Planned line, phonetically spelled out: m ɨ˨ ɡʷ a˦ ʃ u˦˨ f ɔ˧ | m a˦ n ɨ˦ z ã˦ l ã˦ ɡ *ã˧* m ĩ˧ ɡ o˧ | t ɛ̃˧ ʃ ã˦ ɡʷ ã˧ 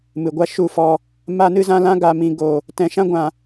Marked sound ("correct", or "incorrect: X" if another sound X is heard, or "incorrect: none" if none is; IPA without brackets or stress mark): incorrect: a˧